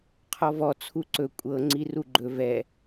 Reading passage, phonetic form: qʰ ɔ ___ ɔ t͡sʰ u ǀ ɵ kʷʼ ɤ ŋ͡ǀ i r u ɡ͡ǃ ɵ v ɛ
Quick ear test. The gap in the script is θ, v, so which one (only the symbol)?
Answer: v